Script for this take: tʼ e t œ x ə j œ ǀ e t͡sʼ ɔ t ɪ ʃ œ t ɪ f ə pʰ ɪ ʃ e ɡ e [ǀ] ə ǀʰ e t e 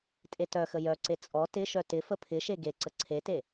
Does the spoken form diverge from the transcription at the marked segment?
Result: no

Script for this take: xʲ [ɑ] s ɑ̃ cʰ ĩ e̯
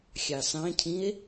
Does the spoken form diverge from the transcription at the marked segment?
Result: no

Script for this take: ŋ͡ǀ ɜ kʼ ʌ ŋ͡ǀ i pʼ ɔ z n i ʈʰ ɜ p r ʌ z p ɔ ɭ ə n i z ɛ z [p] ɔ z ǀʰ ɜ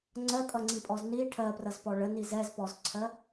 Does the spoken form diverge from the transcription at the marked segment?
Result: no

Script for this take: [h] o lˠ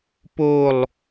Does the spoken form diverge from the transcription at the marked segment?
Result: yes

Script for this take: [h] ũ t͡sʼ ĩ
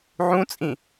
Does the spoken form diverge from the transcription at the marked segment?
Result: yes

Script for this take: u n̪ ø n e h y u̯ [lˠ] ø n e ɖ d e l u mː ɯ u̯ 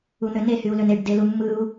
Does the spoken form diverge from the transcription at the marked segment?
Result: yes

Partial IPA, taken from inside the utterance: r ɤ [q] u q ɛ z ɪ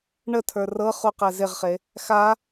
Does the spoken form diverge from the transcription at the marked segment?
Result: yes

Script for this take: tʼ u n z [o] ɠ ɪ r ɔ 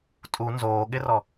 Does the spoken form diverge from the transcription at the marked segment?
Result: yes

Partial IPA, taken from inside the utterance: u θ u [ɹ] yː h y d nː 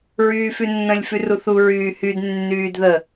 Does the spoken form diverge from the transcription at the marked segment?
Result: no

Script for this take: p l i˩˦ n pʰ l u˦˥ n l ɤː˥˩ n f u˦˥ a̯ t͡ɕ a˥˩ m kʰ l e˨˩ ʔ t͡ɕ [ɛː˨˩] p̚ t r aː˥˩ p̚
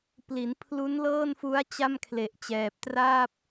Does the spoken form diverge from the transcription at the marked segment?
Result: no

